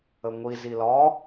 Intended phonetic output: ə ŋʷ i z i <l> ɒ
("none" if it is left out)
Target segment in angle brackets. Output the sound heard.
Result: l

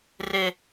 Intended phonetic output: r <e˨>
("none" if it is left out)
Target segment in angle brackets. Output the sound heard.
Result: e˨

